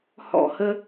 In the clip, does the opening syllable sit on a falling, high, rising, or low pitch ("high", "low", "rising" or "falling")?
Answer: falling